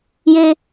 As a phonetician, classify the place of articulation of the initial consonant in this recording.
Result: palatal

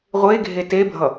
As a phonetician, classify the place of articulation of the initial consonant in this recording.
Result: uvular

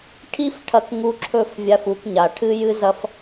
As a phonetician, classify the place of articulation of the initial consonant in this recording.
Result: retroflex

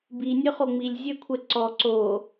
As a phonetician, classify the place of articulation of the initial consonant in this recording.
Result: labial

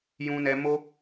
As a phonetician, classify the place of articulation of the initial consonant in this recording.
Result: palatal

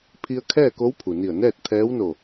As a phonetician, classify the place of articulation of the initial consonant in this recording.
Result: labial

